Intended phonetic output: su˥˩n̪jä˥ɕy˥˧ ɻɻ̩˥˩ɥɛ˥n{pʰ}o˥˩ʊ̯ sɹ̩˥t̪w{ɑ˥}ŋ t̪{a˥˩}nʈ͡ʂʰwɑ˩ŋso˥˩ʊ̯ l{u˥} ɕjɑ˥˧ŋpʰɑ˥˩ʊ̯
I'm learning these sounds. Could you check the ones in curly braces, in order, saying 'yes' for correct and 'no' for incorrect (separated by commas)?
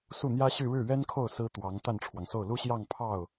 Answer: no, no, yes, yes